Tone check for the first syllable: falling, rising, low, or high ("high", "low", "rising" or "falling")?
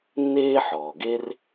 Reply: high